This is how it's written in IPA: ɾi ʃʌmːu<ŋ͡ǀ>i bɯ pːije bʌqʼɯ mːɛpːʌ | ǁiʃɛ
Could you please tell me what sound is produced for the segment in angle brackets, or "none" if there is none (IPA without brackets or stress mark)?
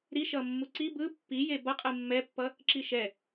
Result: ǀ